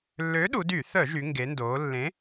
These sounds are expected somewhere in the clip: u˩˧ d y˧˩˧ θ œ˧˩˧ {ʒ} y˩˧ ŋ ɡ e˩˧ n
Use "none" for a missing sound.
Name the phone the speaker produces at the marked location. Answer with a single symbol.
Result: ʒ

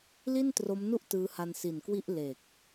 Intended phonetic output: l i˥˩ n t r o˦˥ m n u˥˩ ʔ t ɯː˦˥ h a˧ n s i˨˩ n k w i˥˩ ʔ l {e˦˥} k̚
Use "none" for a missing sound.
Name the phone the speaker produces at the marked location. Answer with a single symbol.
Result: e˨˩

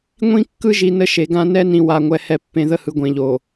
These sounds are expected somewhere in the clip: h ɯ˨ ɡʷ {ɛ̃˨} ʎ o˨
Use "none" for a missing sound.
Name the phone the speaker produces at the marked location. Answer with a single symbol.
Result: ẽ˨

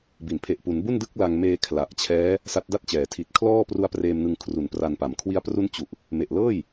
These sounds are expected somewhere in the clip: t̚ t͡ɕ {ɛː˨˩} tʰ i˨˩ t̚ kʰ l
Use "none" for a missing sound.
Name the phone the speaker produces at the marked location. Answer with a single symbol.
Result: ɛː˩˦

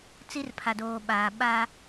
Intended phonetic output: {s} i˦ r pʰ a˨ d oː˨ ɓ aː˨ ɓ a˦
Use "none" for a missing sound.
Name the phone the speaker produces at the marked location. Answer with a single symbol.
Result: t͡s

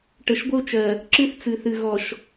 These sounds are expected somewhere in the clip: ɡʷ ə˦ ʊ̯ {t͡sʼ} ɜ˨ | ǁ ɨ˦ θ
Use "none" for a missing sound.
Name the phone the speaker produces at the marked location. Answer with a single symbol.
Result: t͡ʃ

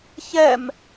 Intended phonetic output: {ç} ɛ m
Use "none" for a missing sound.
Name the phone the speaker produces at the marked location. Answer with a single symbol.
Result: ç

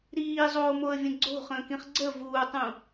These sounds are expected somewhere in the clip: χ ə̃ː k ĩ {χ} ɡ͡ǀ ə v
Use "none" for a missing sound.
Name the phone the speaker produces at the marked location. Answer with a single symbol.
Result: χ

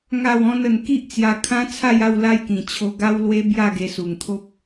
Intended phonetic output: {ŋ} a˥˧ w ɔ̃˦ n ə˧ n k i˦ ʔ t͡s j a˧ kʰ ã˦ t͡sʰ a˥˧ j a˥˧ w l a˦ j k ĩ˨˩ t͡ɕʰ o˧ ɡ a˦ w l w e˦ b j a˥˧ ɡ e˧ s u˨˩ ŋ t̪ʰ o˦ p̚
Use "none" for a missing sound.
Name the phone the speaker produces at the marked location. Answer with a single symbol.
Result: ŋ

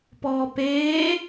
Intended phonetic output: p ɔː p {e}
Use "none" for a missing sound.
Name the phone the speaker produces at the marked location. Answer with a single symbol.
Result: eː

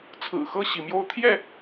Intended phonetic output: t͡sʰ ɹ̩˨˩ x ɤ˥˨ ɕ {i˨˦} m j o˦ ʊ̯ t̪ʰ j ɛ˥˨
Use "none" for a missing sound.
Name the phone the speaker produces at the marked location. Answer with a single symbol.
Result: i˨˦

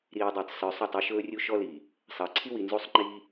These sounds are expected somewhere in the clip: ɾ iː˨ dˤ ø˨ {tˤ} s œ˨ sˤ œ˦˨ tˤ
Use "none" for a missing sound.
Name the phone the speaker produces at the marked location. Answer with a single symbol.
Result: tˤ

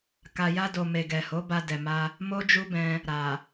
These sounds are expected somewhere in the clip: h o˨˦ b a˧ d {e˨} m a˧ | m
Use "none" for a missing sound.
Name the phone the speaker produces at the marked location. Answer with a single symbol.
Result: ɛ˨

